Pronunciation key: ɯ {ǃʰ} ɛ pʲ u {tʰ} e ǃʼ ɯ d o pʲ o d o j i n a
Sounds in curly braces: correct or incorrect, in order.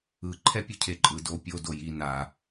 correct, incorrect

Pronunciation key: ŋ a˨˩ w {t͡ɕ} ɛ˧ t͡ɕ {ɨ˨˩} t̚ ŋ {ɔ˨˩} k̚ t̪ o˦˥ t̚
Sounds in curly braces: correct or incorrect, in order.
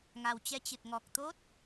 correct, correct, correct

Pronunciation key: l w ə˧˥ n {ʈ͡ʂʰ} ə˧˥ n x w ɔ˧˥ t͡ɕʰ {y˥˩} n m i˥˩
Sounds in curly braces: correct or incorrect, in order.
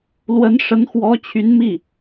incorrect, incorrect

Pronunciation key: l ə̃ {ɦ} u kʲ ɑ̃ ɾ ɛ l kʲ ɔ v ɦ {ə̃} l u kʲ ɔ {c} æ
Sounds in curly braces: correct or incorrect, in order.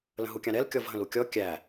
correct, correct, incorrect

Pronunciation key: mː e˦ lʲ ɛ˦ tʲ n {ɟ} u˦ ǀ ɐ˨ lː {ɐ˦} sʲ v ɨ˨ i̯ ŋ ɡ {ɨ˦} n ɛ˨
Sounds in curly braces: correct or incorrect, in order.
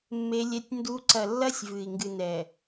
incorrect, correct, incorrect

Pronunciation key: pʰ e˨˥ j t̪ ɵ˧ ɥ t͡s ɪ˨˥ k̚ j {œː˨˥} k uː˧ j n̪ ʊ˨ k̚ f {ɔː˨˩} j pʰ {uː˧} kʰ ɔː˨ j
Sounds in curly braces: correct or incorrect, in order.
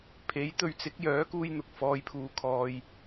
correct, incorrect, incorrect

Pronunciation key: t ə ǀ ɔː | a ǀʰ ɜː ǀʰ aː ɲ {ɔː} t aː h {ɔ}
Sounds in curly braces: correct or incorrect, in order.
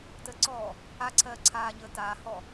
incorrect, correct

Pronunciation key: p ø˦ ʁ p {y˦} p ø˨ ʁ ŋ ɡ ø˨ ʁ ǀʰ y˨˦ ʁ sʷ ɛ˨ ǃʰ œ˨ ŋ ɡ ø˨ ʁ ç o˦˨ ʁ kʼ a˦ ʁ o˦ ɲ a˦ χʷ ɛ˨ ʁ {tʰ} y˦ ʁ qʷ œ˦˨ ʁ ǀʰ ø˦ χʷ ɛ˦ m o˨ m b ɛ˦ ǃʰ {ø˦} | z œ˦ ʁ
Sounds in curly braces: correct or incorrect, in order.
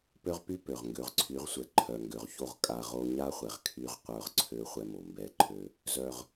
correct, incorrect, correct

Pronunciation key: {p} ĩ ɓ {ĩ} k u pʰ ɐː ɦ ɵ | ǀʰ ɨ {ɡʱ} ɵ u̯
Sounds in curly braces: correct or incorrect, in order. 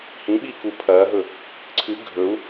incorrect, incorrect, correct

